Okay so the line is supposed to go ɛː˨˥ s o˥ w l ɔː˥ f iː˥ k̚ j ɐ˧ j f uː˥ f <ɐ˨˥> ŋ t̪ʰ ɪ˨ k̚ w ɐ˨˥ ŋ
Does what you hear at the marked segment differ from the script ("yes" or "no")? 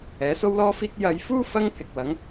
yes